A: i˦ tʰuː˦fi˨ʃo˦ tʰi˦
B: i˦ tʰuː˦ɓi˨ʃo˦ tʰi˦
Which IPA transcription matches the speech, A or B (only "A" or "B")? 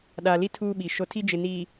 B